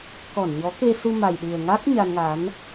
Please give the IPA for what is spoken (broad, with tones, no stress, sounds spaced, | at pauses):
k ɔ˧˩ n ɲ ɔ˨˦ k e˧ s u˧ m a˨˩ j ɗ ɨ˨˩ ə̯ ŋ a˦˥ k̚ ɲ a˧ n ŋ a˨˦ n